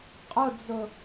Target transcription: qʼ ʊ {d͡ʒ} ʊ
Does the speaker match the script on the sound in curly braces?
no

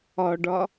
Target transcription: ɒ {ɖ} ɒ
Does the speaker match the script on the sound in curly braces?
yes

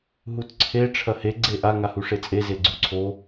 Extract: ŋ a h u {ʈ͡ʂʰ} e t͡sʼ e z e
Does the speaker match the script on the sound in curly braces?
no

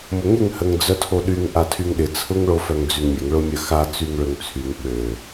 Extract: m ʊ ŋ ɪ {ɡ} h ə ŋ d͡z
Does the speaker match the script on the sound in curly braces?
no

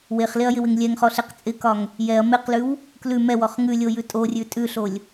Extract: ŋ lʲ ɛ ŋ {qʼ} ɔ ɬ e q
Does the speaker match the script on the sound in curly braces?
no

